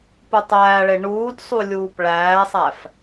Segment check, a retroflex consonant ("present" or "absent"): present